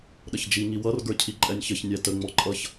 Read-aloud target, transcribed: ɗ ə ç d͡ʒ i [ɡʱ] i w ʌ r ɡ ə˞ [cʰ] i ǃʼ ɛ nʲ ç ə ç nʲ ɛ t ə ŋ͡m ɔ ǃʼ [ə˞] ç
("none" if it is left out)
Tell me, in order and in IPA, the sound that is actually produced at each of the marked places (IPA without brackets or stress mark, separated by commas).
ŋ, cʰ, ʌ